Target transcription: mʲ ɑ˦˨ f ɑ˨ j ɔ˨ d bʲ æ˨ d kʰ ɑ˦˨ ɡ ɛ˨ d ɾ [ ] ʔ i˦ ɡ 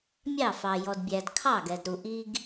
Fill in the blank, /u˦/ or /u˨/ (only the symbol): u˨